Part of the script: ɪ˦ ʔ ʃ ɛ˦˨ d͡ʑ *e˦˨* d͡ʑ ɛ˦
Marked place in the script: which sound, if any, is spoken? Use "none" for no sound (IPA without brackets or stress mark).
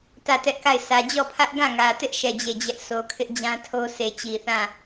e˦˨